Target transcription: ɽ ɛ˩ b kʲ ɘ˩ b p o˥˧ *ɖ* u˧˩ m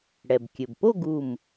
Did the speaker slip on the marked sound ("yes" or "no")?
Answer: yes